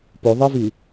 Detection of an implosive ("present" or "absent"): absent